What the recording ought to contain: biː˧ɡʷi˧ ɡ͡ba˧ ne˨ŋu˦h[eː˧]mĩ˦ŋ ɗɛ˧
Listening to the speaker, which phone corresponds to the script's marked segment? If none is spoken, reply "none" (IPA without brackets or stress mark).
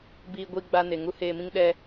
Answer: eː˧